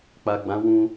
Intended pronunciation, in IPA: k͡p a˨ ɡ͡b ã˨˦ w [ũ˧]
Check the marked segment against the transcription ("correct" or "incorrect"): correct